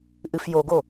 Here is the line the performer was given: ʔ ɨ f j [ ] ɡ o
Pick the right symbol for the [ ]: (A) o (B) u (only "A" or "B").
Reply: A